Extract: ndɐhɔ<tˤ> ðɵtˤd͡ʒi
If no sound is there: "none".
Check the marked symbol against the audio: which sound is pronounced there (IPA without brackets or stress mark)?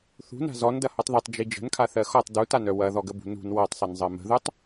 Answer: tˤ